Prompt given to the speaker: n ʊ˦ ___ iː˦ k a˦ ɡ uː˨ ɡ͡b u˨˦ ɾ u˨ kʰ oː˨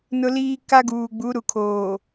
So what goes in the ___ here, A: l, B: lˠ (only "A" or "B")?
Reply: A